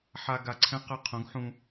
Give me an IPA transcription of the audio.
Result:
ħa˧ ɡa˧ǀʰɛ̃˥qɐ˥˨ qʰũ˩˥ɡħũ˧

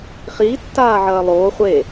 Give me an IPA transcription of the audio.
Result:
χiːtːaːʕɐː lˠoː χʷe

